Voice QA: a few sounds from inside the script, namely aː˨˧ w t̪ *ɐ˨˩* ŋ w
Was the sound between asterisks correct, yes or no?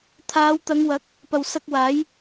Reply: no